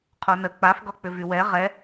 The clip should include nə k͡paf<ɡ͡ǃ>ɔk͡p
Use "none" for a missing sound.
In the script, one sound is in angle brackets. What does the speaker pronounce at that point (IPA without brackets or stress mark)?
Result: ɡ